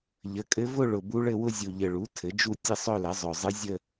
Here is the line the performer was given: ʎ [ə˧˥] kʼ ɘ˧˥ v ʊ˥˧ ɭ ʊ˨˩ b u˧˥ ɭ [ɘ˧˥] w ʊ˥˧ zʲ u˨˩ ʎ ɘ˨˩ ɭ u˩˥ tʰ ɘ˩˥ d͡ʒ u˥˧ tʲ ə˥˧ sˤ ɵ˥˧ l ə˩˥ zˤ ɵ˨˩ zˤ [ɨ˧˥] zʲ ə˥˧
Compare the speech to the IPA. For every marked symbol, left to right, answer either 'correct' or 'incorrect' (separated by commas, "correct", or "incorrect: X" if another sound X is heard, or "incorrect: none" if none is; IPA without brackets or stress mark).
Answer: incorrect: ə˩˥, incorrect: ɘ˥˧, correct